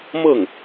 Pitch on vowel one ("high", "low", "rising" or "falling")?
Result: falling